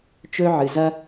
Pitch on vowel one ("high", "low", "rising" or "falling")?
high